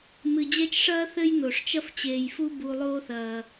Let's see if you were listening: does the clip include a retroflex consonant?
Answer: yes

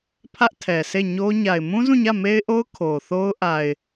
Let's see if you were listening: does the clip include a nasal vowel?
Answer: yes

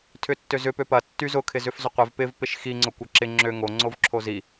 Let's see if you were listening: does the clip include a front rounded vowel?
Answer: yes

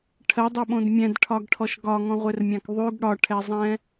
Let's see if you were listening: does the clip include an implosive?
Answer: yes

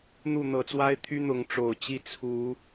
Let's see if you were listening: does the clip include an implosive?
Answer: no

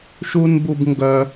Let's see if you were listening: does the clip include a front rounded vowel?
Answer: yes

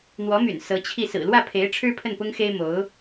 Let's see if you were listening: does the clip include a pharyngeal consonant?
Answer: no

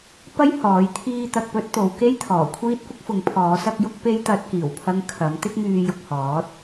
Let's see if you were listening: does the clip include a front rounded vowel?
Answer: yes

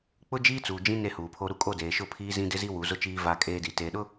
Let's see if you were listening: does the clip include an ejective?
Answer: yes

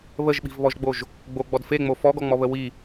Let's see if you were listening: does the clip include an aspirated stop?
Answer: no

